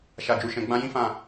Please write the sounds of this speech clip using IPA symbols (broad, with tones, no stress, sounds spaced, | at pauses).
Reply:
ʃ a˧ d͡ʒ u˧ ʃ ɛ̃˧ ɡ͡b ã˦ j ĩ˦ f ã˦˨